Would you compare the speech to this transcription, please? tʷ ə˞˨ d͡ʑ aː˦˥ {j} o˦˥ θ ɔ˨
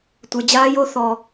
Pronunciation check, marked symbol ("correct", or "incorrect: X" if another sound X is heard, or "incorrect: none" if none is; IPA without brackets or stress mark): correct